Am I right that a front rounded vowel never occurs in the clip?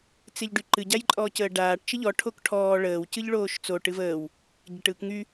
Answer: no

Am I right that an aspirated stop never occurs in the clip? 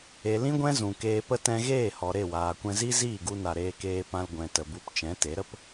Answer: yes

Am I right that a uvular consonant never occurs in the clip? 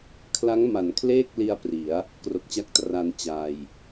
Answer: yes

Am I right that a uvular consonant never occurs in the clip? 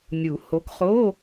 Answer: no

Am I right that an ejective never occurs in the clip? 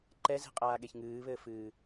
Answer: no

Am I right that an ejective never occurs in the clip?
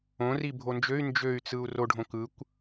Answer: yes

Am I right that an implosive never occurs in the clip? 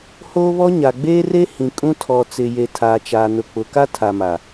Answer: yes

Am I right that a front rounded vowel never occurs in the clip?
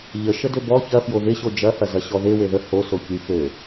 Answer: no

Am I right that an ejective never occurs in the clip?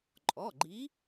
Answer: no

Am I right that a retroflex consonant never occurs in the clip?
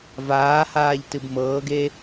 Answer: yes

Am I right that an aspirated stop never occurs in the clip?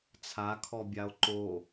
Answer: no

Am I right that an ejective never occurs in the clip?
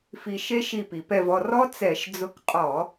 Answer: no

